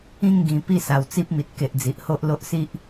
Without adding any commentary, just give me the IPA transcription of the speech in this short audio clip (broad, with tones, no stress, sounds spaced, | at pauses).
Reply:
ĩ˥˧ ŋ ɡ ĩ˨˩ p i˥˧ s a˨˩ w t͡s i˦ p̚ m i˨ t̚ k e˨ ʔ d͡z i˨ ʔ h o˦ ʔ l o˦ ʔ s i˦ ʔ